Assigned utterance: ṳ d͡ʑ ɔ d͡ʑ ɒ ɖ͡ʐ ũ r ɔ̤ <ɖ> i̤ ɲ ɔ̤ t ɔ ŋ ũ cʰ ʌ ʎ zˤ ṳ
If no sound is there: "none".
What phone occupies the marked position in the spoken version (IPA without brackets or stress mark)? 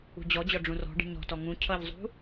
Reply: ɖ